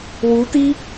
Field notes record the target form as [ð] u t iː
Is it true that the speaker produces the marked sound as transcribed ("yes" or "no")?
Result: no